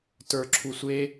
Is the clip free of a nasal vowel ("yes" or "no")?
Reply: yes